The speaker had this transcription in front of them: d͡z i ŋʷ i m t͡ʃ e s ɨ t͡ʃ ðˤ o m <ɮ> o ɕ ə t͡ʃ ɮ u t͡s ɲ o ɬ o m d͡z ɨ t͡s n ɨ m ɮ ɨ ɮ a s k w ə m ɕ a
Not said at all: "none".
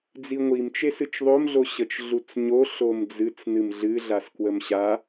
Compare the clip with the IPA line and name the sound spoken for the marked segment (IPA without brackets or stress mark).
ɮ